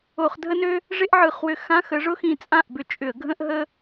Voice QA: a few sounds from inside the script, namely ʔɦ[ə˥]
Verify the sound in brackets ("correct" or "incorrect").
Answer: correct